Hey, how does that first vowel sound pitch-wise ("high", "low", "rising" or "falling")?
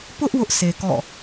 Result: high